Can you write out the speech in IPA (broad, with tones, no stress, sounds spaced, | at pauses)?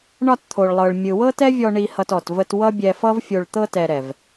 ɳ ɒ˧ t t̪ʰ o˨ ɭ lˠ ɤ˨ ɭ mʲ ɯ˨ w ɤ˦ t ɛ˦ vʲ ɔ˧ ɳ i˧ h ʌ˧ t ɔ˨ t v ə˧ t w ʌ˦ bʲ ɛ˧ f ʌ˦ v fʲ o˧ ɭ t̪ ɤ˦ t ɛ˨ ɾ ɛ˨ v